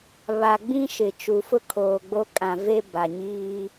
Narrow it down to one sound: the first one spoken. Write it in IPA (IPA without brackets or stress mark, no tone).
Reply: β